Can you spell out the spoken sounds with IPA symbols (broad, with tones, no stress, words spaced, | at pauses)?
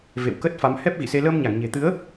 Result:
vḛ˧˨wkə˦˥t̚fa˨˦m hɛ˦˥p̚ɣḭ˧˨se˧ ləː˧mɲa˧˩ŋɲe̤˨˩t̪ɨ˨˦ə̯